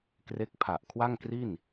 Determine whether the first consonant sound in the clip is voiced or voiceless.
voiceless